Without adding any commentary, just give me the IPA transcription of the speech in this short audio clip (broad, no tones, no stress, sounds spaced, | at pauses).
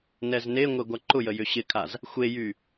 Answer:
n ɛ z n e ŋʷ e ɡʷ a ǃ ʊ j ə j ʏ ɕ ɪ kʰ a z | xʷ e j y